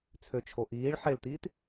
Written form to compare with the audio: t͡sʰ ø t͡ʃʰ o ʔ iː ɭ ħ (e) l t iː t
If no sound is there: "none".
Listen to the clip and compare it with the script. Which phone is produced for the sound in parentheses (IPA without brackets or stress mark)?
e